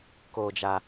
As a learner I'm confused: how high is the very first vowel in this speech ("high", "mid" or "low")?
mid